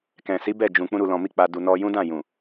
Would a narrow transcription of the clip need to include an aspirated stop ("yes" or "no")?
no